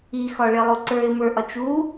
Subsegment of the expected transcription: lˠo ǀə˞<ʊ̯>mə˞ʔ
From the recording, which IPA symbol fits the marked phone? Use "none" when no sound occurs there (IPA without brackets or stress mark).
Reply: ɪ̯